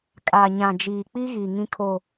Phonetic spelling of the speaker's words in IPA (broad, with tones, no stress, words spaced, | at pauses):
kʼa˨ ɲã˨d͡ʒiː˨k͡pi˦ ɣi˨ŋĩ˦kʰo˦˨